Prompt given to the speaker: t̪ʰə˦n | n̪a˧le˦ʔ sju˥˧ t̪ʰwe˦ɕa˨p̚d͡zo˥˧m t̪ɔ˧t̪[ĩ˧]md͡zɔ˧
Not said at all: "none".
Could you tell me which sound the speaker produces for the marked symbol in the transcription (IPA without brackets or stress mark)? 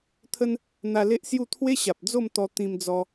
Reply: ĩ˧